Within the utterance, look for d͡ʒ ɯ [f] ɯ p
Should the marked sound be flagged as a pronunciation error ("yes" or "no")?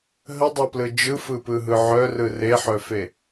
no